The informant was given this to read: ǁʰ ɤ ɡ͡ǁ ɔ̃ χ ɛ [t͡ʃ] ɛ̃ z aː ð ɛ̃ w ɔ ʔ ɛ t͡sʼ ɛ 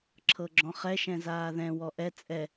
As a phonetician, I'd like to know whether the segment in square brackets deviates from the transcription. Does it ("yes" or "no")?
yes